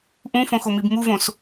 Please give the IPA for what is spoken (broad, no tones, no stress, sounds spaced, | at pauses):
ʔ ũ f õ x o m i b m u v õ s